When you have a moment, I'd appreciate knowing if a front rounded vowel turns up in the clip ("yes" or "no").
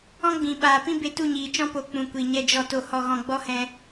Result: no